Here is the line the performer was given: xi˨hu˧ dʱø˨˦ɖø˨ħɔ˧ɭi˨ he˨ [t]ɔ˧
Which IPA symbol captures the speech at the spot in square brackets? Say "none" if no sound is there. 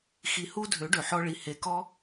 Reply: k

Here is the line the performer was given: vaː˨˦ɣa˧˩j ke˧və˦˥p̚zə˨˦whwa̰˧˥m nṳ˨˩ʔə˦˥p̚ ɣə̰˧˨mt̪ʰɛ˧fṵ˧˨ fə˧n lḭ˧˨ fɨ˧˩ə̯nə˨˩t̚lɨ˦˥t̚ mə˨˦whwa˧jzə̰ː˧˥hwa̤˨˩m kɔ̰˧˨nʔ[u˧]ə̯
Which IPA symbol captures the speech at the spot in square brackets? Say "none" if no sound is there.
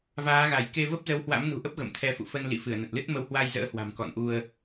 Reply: u˧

